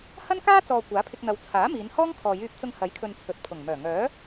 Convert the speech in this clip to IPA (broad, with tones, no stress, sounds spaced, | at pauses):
h ɐ˥ n k aː˥ t͡s ɔː˨ kʷ aː˨˥ pʰ ɪ˧ k̚ n̪ ɐ˨˧ w t͡sʰ aː˨˥ m iː˨˧ n h ɔː˥ ŋ kʰ ɔː˨ j yː˧ p̚ t͡s ʊ˧ ŋ h ɐ˨˥ j kʰ ɵ˨ n t͡sʰ ɵ˨ t̚ pʰ ʊ˨˩ ŋ m œː˨˩ ŋ œː˨˥